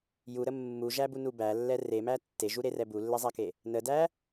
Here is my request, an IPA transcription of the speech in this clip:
j u ɾ ə mː u ʒ æ b u n u b æ lː ɛ r e m æ tː e ʒ u ɾ e r ɛ b u lː ɛ zˤ æ k e | n ə d æ

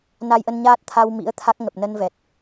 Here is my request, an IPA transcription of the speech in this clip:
n a˧ j ʔ ə˧ n ɲ aː˦˥ t̚ t̪ʰ a˧ w m ḭ˧˥ ə̯ t̪ʰ a˦˥ k̚ ŋ ə˨˩ p̚ n ə˧ n v ɛ˨˩ t̚

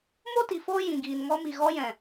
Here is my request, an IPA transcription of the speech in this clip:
m o˦ t i˨ f oː˦ j ĩ˨ ɡ iː˨ n ŋ ɔ˧ m i˨ ɣ ɔ˧ j ɛ̃˨

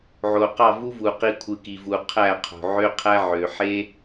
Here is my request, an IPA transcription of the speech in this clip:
ʕ o˨ q ɑ˦˨ v u˦ v u˨ q i˧ kʷʰ ɯ˨ k i˨ v u˨ qʰ æ˦˨ qʰ o̤˨ ʕ ø˦ qʰ æ˦ ʕ ø˨ ħ e˦

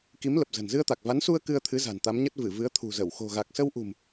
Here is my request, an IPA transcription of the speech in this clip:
k i˨˦ m l ə˨˩ p̚ z ə̤˨˩ n z ɨ˧ ə̯ t̪ a˨˩ k̚ v a˨˦ n s u˧ ə̯ k ɨ˧ ə̯ t̪ʰ ɨ˨˦ z a̤˨˩ n t̪ a˨˦ m ɲ ə˦˥ t̚ v ɨ˧˩ v ɨ˨˦ ə̯ t̪ʰ ṳ˨˩ z ə˧˩ w x o̤˨˩ ɣ a˨˩ k̚ s ə˧ w ʔ ṳ˨˩ m

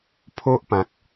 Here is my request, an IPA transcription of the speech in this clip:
pʰ o˦ ʔ p ã˨ k̚

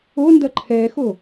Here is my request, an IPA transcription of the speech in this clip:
o n d ɐ ǃʰ ɛ x o

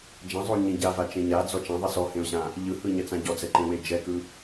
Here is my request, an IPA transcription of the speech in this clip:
d͡ʒ ã zˤ o ɲ ẽ ɟ a v a t͡ʃ ẽ ɲ a d͡z ɔ t͡ʃ ã ðˤ e s ɔ h ẽ ʊ̯ ɕ ã | ʎ ɯ h ɯ ɲ ɛ t͡s ã ɟ ɔ d͡z ɛ ǃ ẽ w e d͡ʒ ɛ k ɯ

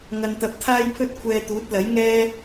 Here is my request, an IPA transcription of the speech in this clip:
ŋ ɐ˧ n t̪ ɐ˧ p̚ t̪ʰ aː˥ j pʰ ɵ˥ t̚ kʷʰ ɛː˧ t̪ uː˨˥ t̚ l ɐ˨˥ j ŋ ɛː˥

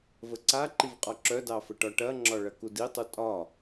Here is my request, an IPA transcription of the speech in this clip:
v ə ǀ a ǃ i v qʼ ɒ ǁ œ d ɑ f ə ʈ ɒ ʈ ɐ ŋ͡ǁ ɒ ɭ ɐ k u d i tˤ u tʼ ɒ

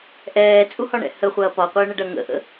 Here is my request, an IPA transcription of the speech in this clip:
ʔ ɛː t͡sʼ u h ɒ ɳ ɛ̰ h ə χʷ ɐː p ɒ qʷ əː ɳ ə ɖ ɐ ŋ ə̰ ʔ ə̰

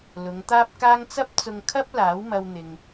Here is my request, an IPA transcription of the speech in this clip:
l ʊ˨˧ ŋ t̪ aː˥ p̚ k aː˥ ŋ t͡s ɐ˥ p̚ t͡s ʊ˧ ŋ kʰ ɐ˥ p̚ l aː˨˥ w m ɐ˧ w n̪ ɪ˨ ŋ

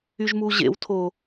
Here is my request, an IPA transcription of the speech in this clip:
y ʒ m u ʑ ḛ w tʰ o

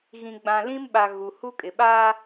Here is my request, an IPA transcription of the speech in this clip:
ɣ ĩ˨ ɡ͡b ã˨ l ĩ˦ m ɓ a˨ ɣ u˨ h u˦ kʼ ɪ˨ ɓ aː˦

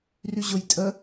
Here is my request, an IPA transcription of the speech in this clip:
r y ʑ ʊ j tʼ ə

